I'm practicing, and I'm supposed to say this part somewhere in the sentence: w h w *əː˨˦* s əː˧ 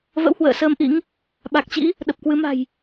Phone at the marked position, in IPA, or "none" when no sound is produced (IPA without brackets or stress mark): ə̰ː˧˨